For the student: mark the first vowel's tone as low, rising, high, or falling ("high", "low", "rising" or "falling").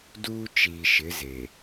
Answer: high